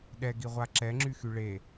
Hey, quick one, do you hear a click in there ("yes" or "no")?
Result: yes